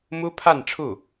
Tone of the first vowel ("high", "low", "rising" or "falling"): high